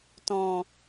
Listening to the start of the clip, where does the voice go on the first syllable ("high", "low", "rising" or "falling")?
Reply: low